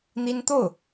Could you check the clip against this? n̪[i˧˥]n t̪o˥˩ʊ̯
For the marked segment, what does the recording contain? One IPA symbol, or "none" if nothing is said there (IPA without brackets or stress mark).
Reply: i˥